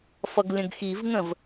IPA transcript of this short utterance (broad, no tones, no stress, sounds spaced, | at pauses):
f ʌ ɡ lʲ ə̃ ɡ x i v ŋ ə̃ v